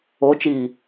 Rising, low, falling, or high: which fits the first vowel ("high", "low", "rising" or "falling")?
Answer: rising